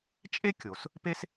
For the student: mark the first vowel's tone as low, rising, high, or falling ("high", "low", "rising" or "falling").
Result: high